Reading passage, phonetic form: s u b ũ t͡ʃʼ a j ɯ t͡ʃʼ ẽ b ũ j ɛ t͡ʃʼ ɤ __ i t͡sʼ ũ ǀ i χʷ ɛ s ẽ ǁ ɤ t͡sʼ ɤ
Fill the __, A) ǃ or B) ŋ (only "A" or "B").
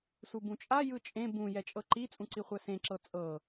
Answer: A